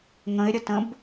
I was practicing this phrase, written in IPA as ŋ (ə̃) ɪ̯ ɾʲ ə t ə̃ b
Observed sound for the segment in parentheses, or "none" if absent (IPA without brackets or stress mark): ə̃